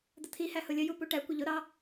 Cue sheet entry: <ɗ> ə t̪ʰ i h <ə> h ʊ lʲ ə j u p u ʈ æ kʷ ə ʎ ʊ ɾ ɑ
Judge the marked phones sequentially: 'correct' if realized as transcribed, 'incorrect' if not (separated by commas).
incorrect, incorrect